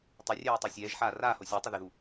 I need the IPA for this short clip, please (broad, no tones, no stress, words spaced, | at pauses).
tˤərʲɛːj tˤœsʲɛːʒħaː raːho sʲəjtˤə ðɪðu